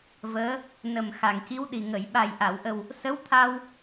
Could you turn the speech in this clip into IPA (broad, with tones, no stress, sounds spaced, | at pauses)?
v əː˧˥ | n ə˨˩ m x a˨˩ ŋ c i˧˥ w ɗ i˨˩ ŋ ə˨˩˨ j ɓ a˨˩ j ʔ a˨˩˨ w ʔ ə˨˩ w | s ə˧˥ w t̪ʰ a˧ w